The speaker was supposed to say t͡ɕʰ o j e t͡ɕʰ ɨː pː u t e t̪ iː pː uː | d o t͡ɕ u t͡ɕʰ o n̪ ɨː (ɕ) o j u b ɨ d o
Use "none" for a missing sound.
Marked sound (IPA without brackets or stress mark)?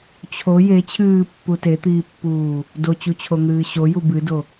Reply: ɕ